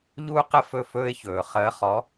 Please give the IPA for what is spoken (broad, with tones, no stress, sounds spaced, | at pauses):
ʎ uː˦ q ə˦ f ɵ˥˨ f ɵː˦ ɪ̯ ç ɵː˨˩˦ χ əː˨˦ χ ɔ˨˦